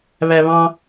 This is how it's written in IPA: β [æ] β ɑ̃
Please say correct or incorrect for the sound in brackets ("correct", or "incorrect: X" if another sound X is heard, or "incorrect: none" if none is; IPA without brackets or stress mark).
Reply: correct